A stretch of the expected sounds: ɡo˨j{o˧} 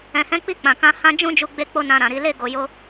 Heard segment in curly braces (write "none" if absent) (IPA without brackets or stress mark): o˧